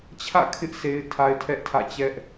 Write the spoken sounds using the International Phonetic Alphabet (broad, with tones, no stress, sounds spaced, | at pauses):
t͡ɕʰ ä̰˦˨ kʰ ɪ˦ ʔ s e˦ ɪ̯ tʰ a˦ ɪ̯ tʰ ɛ˦ ʔ tʰ ä̰˦˨ t͡ɕ ɛ˦ ʔ